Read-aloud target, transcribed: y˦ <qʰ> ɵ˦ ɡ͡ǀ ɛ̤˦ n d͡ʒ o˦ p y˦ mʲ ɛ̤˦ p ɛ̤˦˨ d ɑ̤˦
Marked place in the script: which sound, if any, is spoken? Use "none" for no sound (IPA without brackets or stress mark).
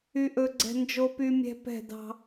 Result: ʔ